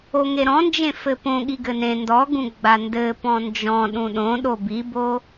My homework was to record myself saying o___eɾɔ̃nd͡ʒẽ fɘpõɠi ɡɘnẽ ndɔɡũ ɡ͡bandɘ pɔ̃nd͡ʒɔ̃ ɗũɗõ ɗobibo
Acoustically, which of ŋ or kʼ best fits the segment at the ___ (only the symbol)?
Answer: ŋ